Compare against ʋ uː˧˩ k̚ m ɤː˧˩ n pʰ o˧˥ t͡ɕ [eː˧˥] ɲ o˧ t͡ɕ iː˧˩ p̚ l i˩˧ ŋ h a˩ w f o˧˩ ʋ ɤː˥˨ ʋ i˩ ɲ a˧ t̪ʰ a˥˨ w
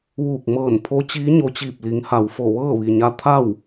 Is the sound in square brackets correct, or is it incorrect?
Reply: incorrect